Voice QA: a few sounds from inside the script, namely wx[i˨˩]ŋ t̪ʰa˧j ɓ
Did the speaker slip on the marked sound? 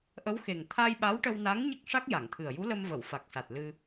yes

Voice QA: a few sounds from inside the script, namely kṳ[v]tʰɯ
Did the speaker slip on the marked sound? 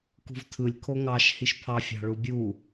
no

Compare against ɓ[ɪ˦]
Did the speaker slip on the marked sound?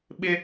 no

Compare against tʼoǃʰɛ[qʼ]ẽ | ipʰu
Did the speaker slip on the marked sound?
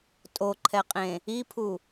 no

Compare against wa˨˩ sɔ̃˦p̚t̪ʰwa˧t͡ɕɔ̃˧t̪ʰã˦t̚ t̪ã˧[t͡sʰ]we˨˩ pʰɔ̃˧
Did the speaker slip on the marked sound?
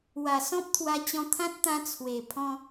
no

